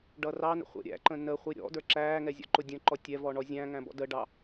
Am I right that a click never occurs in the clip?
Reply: no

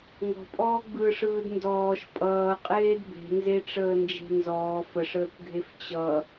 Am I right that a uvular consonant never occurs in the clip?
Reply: no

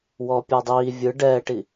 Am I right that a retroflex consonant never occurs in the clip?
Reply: no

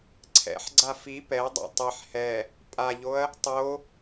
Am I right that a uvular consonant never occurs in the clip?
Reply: yes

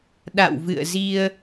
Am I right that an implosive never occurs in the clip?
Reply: no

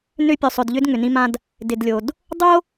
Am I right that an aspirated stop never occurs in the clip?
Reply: yes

